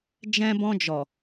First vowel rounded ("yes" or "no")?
no